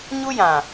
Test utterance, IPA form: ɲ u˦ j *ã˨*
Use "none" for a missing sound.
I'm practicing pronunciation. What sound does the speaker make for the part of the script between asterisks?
ã˨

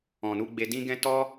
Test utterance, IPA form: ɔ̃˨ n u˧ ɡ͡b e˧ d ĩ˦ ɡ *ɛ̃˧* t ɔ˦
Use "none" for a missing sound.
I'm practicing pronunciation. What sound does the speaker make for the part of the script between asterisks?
ɛ̃˦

